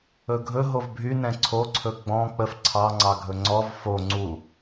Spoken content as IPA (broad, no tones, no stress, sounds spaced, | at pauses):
ɵ ɡʱ ɵ ɦ o v bʱ y n ɛ̃ ǀʰ o ǀʰ ɵ ɡ͡b ɔ̃ k͡p ə f ǀʰ ɑ ŋ͡ǀ ɑ ɡʱ ɵ ŋ͡ǀ ɔ v f o ŋ͡ǀ u